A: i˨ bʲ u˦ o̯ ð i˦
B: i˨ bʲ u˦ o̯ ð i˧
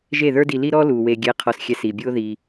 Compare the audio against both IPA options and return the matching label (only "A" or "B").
B